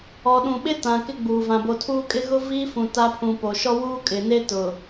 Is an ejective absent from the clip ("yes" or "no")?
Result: no